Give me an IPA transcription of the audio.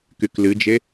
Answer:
k y k l ɨ d͡ʒ e

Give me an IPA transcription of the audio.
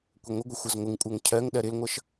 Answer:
kʷ ə ŋʷ ɪ ɡʷ ə xʷ ʌ z ŋʷ ɪ ŋ kʷʼ ɜ ŋ cʰ ɜ ŋ ɗ ɜ ɾ ɪ l ŋʷ ʌ ʃ

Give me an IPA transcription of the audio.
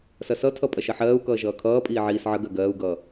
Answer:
s ɐ s ʌ tʰ ʌ pʼ ɐ ʃ ɐ ħ ɜː u̯ k ʌː ʒ ʌː kʰ ʌː pʼ iː ʕ iː s ʕ ə ɡ ɜ ɡ ɜː u̯ ɡ ʌː

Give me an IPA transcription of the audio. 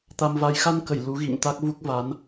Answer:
t̪ a˧ m v a˧ j x a˧ n k ə˧˩ j l u˨˦ ɣ ḭ˧˨ ŋ t̪ a˦˥ k̚ v u˦˥ k̚ v a˨˦ n

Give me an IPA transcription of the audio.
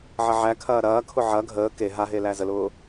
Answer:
ʕ ɐ ʕ æ kʰ ɐː ɾ ɐː kʰ ʊ ʕ ɐ ɡʱ əː k e ɦ a ɦ e l æ z ə l ʊː

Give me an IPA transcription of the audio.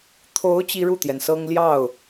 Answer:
t̪ʰ o˧˥ ʊ̯ t͡ɕ i˥ ɻ u˥˩ t̪ j ɛ˩ n s ɤ˥ ŋ l j ɑ˥˩ ʊ̯

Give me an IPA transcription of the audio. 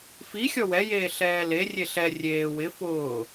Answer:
f i xʲ ɔ w ɛ j eː ɬ ɛː l e rʲ e ɬ ɛ rʲ eː w ɪ f ʊː

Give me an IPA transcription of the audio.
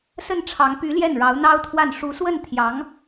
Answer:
s ə˥˩ n ʈ͡ʂʰ ɑ˧˥ ŋ p y˧˥ l j ɛ˥˩ n ɻ ɑ˧˥ ʊ̯ n̪ ɑ˥ ʊ̯ t̪ʰ w a˥˩ n ʂ u˧˥ s w ə˥˩ n t̪ʰ j ɑ˧˥ ŋ

